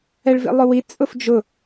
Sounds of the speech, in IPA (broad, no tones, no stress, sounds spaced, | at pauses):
ɛ ɭ v ḭ lˠ ʊ w i t͡sʼ ʊ f d͡ʒ ʊ